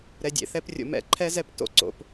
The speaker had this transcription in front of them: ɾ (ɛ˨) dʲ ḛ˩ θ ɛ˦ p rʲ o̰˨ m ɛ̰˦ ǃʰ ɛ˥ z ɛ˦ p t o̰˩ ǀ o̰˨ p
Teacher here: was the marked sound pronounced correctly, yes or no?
yes